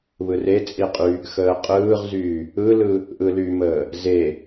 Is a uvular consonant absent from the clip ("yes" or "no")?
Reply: no